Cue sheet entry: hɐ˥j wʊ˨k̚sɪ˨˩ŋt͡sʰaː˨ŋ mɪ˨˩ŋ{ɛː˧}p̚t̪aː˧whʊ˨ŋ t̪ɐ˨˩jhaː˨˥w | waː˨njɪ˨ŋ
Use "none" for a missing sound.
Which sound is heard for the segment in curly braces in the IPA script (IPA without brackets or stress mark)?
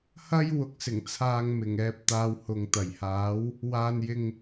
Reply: ɛː˧